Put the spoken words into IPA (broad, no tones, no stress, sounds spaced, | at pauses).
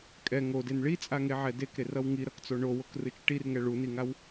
kʼ ɛ ŋ o d e n ɭ i t͡sʼ a ŋ e ʕ ɛ d e k ɾ e r ʌ w ŋ i ɾ ʌ k t͡s o ɳ o w o k r ɯ t͡ʃ ʈ i r ŋ ɛ ɭ u n i ŋ a w